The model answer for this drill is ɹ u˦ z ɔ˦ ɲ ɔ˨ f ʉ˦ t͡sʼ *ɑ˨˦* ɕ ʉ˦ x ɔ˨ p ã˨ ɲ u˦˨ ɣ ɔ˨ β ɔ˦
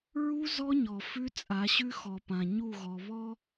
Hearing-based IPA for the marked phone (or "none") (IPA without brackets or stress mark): a˨˦